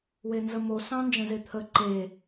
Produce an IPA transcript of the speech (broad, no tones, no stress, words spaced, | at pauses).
wenzəmo sɑ̃nd͡ʒə̃zet̪ʰə ǃe